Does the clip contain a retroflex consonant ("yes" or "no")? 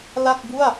no